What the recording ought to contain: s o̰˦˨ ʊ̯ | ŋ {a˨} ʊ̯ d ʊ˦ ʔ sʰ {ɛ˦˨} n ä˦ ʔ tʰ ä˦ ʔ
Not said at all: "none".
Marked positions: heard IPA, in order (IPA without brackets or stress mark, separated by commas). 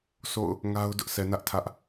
a˦, ɛ˨